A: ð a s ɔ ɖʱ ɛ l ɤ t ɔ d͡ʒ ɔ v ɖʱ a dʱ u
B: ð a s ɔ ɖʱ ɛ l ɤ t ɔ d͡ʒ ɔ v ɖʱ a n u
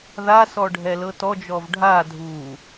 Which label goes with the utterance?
A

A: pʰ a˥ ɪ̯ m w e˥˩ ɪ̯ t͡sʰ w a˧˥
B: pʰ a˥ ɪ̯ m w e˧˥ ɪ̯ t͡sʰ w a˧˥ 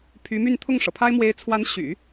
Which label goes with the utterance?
B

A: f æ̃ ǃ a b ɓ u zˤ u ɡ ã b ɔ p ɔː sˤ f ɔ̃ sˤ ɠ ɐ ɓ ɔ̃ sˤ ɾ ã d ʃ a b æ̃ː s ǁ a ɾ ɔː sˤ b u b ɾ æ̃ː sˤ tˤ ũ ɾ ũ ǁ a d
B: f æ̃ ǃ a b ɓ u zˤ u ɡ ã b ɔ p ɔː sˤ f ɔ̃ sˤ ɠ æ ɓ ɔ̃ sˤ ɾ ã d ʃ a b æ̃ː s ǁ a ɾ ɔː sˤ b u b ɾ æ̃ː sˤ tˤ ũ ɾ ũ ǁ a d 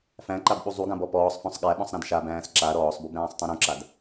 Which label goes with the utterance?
B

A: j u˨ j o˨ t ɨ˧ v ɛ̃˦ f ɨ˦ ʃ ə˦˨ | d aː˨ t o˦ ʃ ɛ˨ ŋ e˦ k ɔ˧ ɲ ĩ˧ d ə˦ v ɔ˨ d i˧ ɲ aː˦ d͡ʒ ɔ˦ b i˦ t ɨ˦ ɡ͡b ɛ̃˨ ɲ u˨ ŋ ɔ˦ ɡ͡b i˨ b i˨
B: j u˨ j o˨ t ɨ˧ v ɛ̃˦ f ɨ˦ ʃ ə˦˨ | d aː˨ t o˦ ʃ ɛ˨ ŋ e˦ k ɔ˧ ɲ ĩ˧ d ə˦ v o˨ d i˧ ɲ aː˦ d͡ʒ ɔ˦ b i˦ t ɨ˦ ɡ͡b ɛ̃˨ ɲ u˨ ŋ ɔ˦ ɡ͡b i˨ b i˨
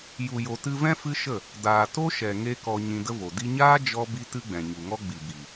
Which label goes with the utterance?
B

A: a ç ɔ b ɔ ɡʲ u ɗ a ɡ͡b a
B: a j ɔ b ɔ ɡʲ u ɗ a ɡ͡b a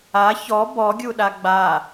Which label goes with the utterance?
A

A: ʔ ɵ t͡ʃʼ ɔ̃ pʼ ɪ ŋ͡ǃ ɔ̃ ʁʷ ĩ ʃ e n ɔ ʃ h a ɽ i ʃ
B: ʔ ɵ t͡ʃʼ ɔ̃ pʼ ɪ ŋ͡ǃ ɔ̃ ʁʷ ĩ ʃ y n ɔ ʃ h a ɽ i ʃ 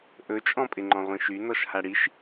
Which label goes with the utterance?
B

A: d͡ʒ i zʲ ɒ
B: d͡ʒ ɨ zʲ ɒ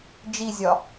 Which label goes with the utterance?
A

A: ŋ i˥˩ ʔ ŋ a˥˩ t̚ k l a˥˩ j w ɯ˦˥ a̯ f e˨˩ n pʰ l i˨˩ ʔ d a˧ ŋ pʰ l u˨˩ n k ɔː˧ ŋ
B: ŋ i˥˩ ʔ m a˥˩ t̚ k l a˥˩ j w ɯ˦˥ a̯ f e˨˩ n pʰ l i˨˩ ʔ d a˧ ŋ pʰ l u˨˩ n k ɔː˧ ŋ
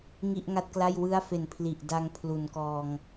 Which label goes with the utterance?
A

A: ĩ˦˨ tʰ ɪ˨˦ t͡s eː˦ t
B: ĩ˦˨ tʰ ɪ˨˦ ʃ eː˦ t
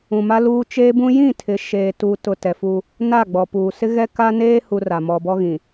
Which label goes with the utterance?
B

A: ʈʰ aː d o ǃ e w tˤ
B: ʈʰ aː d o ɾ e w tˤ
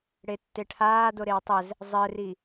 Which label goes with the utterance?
B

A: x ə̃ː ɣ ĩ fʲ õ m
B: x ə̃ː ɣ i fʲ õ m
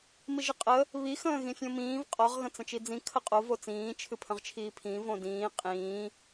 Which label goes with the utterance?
A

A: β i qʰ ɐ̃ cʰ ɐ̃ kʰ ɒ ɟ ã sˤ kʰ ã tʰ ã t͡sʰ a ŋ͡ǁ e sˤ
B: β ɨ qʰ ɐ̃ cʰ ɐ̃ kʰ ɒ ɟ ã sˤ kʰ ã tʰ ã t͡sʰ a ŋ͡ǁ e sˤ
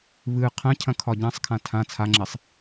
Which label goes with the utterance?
B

